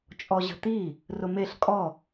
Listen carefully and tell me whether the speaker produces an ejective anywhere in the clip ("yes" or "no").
yes